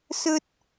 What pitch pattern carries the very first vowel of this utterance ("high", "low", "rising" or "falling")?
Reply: high